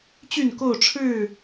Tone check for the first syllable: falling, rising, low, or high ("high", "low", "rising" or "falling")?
falling